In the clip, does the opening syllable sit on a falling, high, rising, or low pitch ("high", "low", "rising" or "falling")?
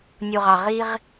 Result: low